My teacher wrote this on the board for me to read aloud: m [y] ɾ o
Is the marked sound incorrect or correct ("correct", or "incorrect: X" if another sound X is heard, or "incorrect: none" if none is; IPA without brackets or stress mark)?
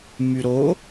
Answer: correct